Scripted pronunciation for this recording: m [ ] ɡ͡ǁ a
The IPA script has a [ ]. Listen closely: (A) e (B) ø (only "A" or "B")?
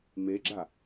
A